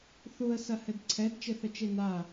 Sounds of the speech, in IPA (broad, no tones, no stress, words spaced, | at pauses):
θuə̯ sɐhɘdǀʰɛd t͡ʃɘθət͡ʃena